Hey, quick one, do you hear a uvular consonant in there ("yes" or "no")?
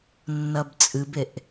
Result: no